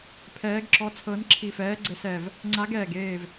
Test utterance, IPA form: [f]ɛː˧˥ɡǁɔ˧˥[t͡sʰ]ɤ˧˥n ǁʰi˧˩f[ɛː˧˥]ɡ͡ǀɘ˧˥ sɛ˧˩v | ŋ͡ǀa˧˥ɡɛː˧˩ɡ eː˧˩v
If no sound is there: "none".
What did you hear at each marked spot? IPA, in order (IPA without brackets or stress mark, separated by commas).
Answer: pʰ, t͡sʰ, ɛː˧˥